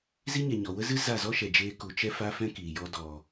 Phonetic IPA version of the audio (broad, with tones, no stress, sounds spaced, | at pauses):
z i˦ ɲ ɛ˨ ɲ ɔ˨ w ə˦ z ɨ˦ z a˦˨ z ɔ˦ ʃ ɛ˨ d͡ʒ eː˧ k u˨ t͡ʃ ɛ˦ f a˦ f ɛ̃˦ k iː˨ j ɔ˧ d ɔ˨